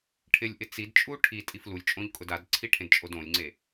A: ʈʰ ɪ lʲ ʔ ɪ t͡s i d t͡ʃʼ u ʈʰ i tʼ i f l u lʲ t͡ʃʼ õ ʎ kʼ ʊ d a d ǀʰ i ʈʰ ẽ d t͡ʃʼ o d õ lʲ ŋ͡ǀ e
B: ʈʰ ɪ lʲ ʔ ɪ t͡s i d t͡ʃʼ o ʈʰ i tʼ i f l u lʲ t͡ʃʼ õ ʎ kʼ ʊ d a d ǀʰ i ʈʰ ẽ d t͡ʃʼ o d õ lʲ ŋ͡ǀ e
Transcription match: A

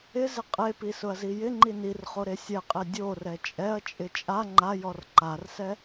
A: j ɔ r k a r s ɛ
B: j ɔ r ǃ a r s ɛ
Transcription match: B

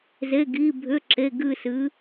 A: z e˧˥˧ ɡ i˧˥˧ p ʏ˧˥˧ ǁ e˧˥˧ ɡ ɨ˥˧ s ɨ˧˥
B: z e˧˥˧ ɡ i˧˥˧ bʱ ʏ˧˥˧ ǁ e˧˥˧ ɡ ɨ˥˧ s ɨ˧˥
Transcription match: B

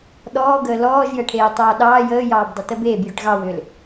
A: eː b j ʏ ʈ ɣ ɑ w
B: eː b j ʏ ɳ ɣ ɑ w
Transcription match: A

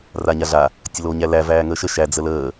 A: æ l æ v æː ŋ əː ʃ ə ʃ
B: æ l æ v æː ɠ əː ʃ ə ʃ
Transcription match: A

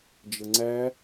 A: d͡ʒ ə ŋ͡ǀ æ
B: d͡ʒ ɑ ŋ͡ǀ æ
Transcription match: A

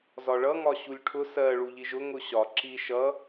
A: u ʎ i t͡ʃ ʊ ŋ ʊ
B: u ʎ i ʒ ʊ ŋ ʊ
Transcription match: B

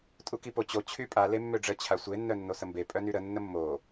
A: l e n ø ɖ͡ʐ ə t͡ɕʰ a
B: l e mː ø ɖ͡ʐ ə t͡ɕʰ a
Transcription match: B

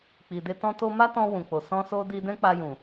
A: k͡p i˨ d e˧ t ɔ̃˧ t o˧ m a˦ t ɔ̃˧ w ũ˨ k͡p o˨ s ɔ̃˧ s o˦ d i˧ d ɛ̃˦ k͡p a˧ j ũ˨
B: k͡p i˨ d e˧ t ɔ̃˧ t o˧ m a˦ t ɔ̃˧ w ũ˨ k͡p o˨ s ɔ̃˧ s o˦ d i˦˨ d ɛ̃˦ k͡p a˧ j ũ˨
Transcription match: A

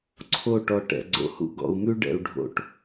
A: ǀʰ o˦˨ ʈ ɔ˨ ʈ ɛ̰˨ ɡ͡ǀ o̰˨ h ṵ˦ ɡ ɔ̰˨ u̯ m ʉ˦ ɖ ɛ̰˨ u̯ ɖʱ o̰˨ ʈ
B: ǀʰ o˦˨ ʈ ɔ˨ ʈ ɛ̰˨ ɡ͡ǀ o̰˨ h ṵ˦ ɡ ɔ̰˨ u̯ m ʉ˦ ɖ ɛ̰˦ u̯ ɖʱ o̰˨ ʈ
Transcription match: A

